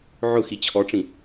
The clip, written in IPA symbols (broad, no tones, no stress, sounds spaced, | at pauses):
ʕ ʊ x i t͡ɕʰ ɔ ʈ͡ʂ ĩ